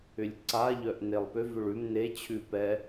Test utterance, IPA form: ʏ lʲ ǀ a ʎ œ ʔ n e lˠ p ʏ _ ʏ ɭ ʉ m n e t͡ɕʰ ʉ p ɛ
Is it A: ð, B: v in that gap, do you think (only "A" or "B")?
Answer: B